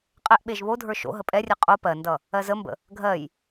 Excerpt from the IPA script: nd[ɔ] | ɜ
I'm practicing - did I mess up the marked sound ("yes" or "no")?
yes